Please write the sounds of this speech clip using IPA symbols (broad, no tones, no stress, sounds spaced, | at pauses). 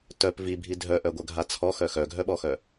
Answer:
t œ p v i bʱ i dʱ œ ʔ œ ɡʷ œ ɡʱ a t͡sʰ ɔ x œ x œ ɡʱ œ ɓ ɔ x œ